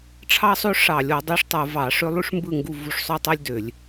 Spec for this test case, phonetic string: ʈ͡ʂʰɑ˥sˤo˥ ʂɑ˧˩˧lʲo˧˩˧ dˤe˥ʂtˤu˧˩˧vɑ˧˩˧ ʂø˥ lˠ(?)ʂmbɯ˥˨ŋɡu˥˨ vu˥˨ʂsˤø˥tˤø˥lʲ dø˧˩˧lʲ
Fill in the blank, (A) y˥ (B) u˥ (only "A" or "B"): A